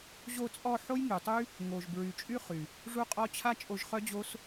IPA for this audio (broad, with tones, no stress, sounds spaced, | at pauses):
ʑ o˧ t͡sʼ ɔ˧ ħ o˦ j ŋ y˨ tˤ y˦ | ŋ o˨ ʒ b ɹ y˨ t͡ʃʼ y˦ χ y˨ | ʐ u˦ qʼ ɔ˦ t͡ɕʰ a˦ t͡ʃʼ o˧ ʒ χ œ˦ d͡ʑ o˦ s